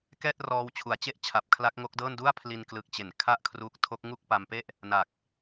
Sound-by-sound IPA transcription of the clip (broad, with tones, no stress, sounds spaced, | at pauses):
k ɛː˥˩ t̚ r ɔː˧ w t͡ɕʰ u˨˩ a̯ t͡ɕ e˥˩ ʔ t͡ɕʰ a˨˩ p̚ kʰ l a˦˥ k̚ ŋ o˦˥ k̚ d ɤː˥˩ n d u˥˩ a̯ pʰ l i˧ n k l ɯ˨˩ k̚ t͡ɕ e˩˦ n kʰ a˥˩ ʔ kʰ r u˦˥ k̚ tʰ o˦˥ k̚ ŋ u˥˩ k̚ p a˧ m p e˥˩ ʔ | n a˨˩ k̚